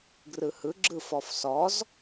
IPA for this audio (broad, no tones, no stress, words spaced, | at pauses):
ɡrɯhɯɡ͡ǁɯ fɔfsɔz